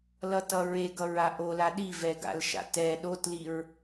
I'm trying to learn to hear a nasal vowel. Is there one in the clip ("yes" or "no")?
no